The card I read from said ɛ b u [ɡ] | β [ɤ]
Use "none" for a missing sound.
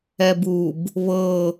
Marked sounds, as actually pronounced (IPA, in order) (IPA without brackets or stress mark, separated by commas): b, ɤ